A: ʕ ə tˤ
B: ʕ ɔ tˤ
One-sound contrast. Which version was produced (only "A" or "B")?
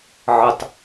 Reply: A